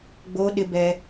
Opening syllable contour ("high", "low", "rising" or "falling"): high